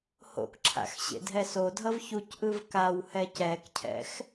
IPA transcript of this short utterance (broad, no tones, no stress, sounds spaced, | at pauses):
h o̰ k ǁʰ a̰ x ɕ ḛ dʱ ɛ s o dʱ ʌ v ç u c ʔ ɯ v k a w h ɛ c ɛ k cʰ ɛ̰ x